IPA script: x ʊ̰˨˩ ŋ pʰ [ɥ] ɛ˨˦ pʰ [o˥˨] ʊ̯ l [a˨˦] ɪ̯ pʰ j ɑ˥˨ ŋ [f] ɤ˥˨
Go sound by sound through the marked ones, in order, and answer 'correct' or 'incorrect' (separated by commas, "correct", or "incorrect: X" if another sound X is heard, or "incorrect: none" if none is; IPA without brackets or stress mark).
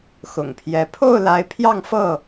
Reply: incorrect: j, correct, correct, correct